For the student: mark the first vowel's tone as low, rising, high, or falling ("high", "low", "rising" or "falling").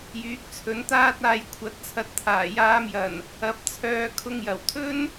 rising